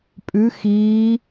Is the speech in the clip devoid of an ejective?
no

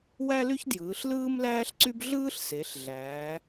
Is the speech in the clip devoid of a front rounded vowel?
no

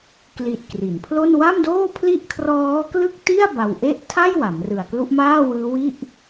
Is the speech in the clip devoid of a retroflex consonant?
yes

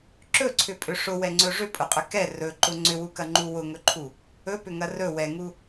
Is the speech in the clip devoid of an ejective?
no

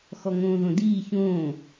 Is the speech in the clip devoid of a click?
yes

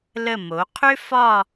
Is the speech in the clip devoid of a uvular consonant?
no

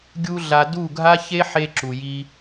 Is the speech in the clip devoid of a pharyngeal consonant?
no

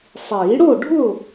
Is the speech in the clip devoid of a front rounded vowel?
yes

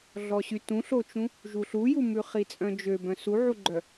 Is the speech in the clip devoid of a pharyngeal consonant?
no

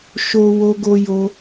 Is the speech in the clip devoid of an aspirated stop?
yes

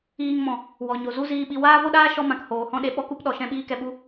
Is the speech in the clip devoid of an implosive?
no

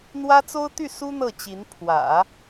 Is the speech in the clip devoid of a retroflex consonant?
yes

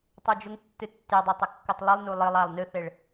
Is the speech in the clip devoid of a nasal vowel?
yes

